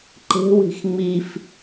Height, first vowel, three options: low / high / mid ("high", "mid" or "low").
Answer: mid